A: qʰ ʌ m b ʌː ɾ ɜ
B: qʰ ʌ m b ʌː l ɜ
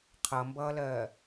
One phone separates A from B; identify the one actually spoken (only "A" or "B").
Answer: B